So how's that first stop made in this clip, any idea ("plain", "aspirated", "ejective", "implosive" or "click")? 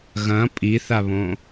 ejective